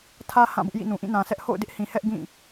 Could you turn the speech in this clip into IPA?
tʰä˦ hã˦˨bʊ˦ʔjḭ˦˨nũ˨ ʔĩ˦˨nã˨ sʰɛ˦ʔ ho̰˦˨ʊ̯dɪ˦ʔhĩ˨ hɛ˦ʔ ɡĩ˦˨

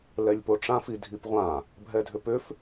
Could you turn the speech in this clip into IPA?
lɛlʲpoʈ͡ʂãfi dʱipʁʷã | bʱɛdʱʏpʏf

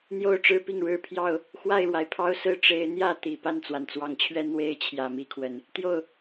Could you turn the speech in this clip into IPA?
n̪jo˥˨ʊ̯ʈ͡ʂɻ̩˦pi˥˨ŋɻɻ̩˦ pʰjɑ˥˨ʊ̯ | xwa˥˨ɪ̯ɻwa˩ɪ̯pʰɑ˦ʊ̯sɹ̩˥˨ ʈ͡ʂe˨˦ɪ̯n̪jä˥˨t̪i˨˩ pa˥˨nt͡swa˩nt͡swɑ˨˩ŋt͡ɕʰɥɛ˦ n̪we˦ɪ̯ t͡ɕʰjä˨˩mi˦kʰwə˨˩n | t̪jo˥˨ʊ̯

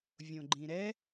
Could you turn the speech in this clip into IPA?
vʲõɡ͡ǃĩɾɛ

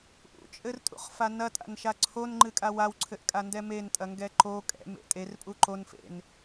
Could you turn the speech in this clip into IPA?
ʔṵt͡ʃʼɘrtʼṵχfa nɐtʼa̰nʃa ǀʰonŋ͡ǃɨkʼa wawǀʰɘʔkʼandɛ mentʼɐŋɡɛ ǃo kʼɛ̰mḛ tʼerpʼu ǃonfḛn

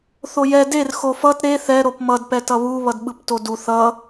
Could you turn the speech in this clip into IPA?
θojɛ der xofʌt ɾe θɛ ɾopmʌd pɛtʌβu βʌdɓɯptodu θʌ

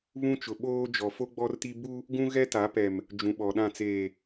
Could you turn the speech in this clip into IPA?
βũ˦t͡ʃʊ˨ ɓoː˦ d͡ʒɔ˨fo˦ɡ͡bɔ˦rti˦ bu˦ | ɡũ˦ɣɛ˦ta˨˦ pɛ˨m | d͡ʒũ˨ɓɔ˨ɗã˦˨ t͡seː˨

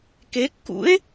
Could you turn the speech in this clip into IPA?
kekːṵe̯

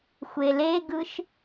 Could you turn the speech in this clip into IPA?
xʷeleɡɯʃ

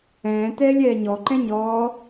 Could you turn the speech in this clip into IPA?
ɛ̃ːtɛːlʲ ɛːɲɔ ǃɛ̃ɲɔː

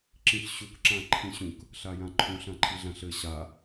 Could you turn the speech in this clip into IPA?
ǁĩɬɕuk ǁãǃʰĩɕũk | ɬajãǃʰũɬ ãǃʰiɮãɬɘ ɕa

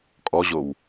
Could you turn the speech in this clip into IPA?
kʼɔʑow

